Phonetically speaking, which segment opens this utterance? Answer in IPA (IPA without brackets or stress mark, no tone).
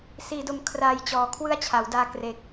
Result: s